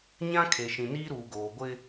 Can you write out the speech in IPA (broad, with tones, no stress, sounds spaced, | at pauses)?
ɲ ã˦ kʰ e˨ ʃ ĩ˨ n iː˦ ɾ uː˨ ɡ oː˨ ɡʷ ɪ˦